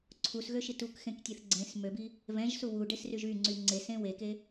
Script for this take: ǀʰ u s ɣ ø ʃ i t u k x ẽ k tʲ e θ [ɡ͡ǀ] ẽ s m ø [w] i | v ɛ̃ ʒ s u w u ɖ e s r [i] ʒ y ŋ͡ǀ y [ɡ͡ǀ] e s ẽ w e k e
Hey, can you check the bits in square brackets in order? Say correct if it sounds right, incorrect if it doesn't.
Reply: correct, incorrect: b, incorrect: y, incorrect: ŋ͡ǀ

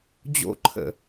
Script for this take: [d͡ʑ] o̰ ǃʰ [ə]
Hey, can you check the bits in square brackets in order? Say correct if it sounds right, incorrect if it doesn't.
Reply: correct, incorrect: ə̰

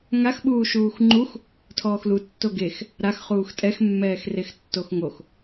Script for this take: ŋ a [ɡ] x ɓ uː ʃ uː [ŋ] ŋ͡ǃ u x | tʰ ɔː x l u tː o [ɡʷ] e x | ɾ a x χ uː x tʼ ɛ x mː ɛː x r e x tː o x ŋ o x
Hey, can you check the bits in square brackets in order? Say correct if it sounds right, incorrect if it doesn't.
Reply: incorrect: none, incorrect: x, incorrect: ɡ

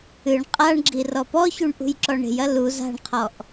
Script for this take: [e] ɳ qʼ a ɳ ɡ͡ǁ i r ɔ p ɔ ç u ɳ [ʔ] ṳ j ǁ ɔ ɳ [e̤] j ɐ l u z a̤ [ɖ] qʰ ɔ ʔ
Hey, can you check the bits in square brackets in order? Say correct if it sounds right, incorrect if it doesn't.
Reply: incorrect: ɨ, correct, correct, incorrect: ɳ

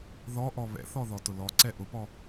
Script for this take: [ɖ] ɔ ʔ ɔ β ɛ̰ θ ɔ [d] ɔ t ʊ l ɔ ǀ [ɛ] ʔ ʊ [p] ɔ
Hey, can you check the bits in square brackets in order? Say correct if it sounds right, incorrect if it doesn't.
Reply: incorrect: ð, incorrect: ð, correct, correct

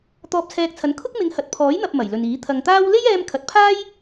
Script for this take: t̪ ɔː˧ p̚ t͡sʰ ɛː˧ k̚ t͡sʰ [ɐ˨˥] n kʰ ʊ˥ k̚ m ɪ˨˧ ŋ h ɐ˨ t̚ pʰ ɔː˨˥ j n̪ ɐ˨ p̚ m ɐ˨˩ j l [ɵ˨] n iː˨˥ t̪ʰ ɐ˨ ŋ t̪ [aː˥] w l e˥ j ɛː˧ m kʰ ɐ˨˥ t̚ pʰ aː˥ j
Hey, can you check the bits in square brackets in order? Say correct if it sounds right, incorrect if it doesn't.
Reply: correct, correct, correct

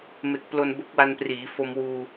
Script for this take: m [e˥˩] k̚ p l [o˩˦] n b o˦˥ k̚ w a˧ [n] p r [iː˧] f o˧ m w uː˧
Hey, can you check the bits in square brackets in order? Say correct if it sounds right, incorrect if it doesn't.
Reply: incorrect: e˨˩, incorrect: o˧, correct, incorrect: iː˩˦

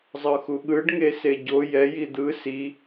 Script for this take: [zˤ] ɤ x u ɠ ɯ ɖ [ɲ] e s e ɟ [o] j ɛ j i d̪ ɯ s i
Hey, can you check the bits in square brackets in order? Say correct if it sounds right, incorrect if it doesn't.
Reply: correct, incorrect: ŋ, correct

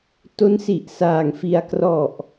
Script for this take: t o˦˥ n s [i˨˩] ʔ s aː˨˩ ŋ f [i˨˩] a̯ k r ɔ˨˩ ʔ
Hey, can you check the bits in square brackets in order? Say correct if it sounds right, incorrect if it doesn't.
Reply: correct, incorrect: i˧

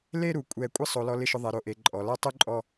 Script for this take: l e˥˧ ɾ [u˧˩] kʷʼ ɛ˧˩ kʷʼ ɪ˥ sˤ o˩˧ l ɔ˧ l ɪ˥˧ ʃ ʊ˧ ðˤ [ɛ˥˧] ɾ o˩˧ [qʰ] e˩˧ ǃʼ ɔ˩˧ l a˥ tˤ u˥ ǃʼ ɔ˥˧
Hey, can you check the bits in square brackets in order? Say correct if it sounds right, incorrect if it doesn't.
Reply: incorrect: u˩˧, incorrect: ɛ˩˧, incorrect: ʔ

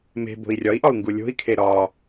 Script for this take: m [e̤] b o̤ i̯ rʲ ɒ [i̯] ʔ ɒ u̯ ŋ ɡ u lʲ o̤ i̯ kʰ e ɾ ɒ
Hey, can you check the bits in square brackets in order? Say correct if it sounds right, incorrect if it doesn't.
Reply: correct, correct

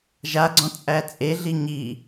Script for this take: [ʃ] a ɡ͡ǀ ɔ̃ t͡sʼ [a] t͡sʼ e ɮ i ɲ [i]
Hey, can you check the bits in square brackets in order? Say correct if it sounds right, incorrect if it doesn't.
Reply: incorrect: ʒ, incorrect: æ, correct

